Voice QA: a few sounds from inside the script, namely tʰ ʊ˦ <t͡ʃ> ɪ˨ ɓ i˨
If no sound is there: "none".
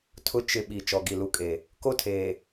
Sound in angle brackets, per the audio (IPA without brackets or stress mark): t͡ʃ